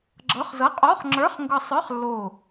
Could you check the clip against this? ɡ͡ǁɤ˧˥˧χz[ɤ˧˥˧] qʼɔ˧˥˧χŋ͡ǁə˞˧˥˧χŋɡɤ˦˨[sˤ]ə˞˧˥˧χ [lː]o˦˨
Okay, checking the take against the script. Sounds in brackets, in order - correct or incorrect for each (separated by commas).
correct, correct, correct